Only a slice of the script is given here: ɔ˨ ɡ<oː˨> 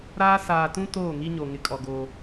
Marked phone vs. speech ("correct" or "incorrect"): incorrect